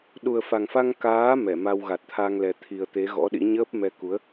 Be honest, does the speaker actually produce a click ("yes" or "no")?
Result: no